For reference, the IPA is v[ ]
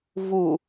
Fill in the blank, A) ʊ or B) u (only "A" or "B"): B